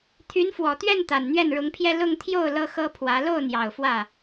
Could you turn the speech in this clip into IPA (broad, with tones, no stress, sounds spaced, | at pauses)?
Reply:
t̪ʰ y˧˥ n f w ɔ˨˩ t̪ ɥ ɛ˥˩ n t̪ a˨˩ n n̪ ɥ ɛ˥˩ n ɻ ʊ˧˥ ŋ pʰ j ɛ˥˧ l ʊ˥˧ ŋ t̪ʰ j o˥˩ ʊ̯ l ɤ˥ x ɤ˥ pʰ w ä˧˥ l o˥˩ ʊ̯ n̪ j ɑ˨˩ ʊ̯ f w ä˥˩